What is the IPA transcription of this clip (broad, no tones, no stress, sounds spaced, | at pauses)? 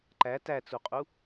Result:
ǃ æ t æ t͡s u qʼ u